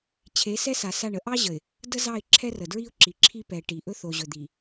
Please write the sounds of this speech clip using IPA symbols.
t͡ɕʰ e˨˦ s ɛ˦ s a˨ s a˦˨ ɳ ə˦ ʔ ɑ˦ ʑ ə˨ ɪ̯ | d ə˦ z ɑ˦˨ ɪ̯ ǁʰ ɛ˦ r ə˨ d ɹ i˦ ʊ̯ ǁ i˨ ǁʰ i˦ p ɛ˨ ʈ i˨ ʔ ɵ˦ θ o˨ ʑ ɵ˨ d̪ i˨

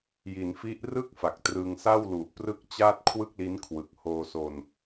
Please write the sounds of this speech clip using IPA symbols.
j i˩˦ n f i˦˥ ʔ r ɯ˥˩ k̚ f a˨˩ k̚ t r ɯ˧ ŋ s a˥˩ w l u˨˩ ʔ p r ɯ˥˩ k̚ t͡ɕ aː˥˩ t̚ kʰ w ɯ˥˩ k̚ l i˦˥ n kʰ w ɯ˨˩ k̚ h oː˧ s o˧ n

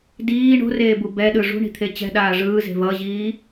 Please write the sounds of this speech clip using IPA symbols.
d iː ɳ o̤ r eː b u b ɛ ɗ ɯ ʐ ṳ ɳ i̤ t̪ʰ e t͡ɕ ɛ̤ ɗ aː ʐ ɯː z e̤ v ʌ ʑ iː

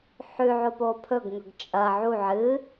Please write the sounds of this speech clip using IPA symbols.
ħ ʉ ʕ o p o pʰ ɵ ɡ ŋ ɵ ɡ t͡ʃʼ ɐ ʕ u ʕ ɨ

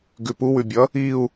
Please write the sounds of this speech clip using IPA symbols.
ɡ ʉ p u w ʉ bʲ ʌ | i u̯

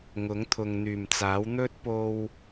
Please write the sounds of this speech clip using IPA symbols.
ŋ ʊ˨˥ ŋ t̪ʰ ʊ˨ ŋ n̪ yː˨˩ m t͡s aː˨˥ w n̪ ɵ˥ t̚ p o˧ w

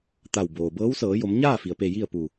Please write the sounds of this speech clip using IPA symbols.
t̪ a˧˩ w b oː˩ b ɤː˧˥ w s ɤː˩˧ j o˩˧ m ɲ aː˥˨ f i˩ ə̯ p e˧˩ j i˥˨ ə̯ p u˧˩

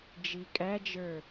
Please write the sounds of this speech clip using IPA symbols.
d͡ʒ i kʼ æ d͡ʒ ə˞

